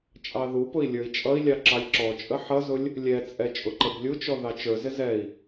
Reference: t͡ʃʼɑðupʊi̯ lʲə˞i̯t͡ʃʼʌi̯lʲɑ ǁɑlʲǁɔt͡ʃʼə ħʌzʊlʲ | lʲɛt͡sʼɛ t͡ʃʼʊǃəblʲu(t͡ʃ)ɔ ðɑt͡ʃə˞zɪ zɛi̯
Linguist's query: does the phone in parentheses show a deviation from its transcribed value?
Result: no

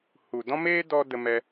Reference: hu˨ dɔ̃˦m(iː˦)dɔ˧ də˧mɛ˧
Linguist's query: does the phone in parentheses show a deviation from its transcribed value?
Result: yes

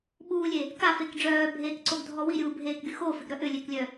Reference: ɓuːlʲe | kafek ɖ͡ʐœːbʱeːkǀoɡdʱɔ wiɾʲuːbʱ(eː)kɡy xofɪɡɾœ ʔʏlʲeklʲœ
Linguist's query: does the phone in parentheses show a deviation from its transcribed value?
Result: no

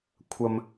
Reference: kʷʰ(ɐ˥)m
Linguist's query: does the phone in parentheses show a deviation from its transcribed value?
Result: yes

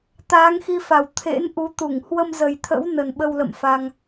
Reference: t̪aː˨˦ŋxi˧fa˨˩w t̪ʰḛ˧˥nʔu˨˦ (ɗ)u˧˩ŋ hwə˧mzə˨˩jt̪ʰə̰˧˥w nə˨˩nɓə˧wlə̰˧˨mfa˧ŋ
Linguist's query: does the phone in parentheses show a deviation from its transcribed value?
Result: yes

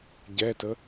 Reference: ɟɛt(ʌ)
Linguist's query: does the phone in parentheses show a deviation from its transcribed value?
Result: yes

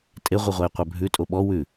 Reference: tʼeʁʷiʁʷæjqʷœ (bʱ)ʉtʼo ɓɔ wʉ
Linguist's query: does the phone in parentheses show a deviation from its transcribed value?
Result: no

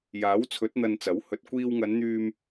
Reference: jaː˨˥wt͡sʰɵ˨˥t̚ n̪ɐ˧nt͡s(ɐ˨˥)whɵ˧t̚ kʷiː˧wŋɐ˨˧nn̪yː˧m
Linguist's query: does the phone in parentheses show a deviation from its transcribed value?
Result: no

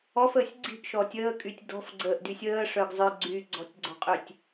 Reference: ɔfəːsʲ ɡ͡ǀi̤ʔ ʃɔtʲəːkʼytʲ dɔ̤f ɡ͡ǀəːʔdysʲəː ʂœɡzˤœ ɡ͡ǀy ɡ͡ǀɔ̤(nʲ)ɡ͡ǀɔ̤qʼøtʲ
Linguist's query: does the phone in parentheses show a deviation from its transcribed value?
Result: yes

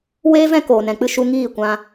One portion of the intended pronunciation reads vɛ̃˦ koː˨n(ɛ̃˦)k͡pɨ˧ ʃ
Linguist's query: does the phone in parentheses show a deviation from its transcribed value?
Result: yes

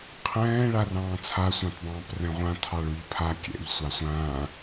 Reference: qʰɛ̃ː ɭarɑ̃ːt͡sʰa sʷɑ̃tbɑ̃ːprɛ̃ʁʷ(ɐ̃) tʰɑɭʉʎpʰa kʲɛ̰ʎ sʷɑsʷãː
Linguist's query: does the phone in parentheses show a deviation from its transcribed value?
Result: yes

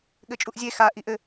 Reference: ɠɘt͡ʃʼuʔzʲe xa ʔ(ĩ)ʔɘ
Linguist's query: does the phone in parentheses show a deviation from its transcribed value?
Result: yes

